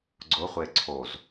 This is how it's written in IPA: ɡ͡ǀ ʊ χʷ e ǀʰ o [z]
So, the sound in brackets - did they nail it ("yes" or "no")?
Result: yes